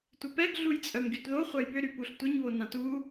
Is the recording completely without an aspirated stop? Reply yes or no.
yes